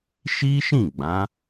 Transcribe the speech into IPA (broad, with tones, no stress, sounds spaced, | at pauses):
ʃ i˦ ʃ ĩ˦˨ ɡ͡b ã˨˦